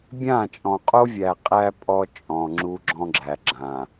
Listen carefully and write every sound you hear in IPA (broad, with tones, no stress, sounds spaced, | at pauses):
bʲ ã˦˨ t͡ʃʼ ɔ̃˨ qʼ o˦ vʲ æ˨ qʼ æ˦ pʼ ɔ˦ t͡ʃʼ ɔ̃˨ ŋ͡ǁ u˦ ɡ͡ǁ ɔ̃˦ ɡ͡ǁ æ˨ ɡ͡ǁ ã˨